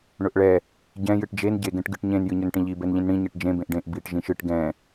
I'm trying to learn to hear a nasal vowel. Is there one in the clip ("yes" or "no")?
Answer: yes